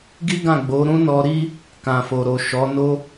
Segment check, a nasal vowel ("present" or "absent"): present